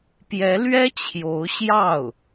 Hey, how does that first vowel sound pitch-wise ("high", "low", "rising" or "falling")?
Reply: rising